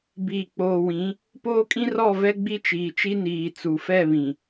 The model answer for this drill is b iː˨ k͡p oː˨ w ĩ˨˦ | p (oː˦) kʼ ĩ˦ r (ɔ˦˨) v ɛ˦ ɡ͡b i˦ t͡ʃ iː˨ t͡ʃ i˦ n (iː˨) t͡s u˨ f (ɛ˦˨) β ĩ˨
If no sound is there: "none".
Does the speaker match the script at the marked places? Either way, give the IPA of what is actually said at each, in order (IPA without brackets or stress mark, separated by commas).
oː˦, ɔ˦˨, iː˨, ɛ˦˨